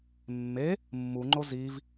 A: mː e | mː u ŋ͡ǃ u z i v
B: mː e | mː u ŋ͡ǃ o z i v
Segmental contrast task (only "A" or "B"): B